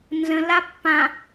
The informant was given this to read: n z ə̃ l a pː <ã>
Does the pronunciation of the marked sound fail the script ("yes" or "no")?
no